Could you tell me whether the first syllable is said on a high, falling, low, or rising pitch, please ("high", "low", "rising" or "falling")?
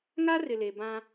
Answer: high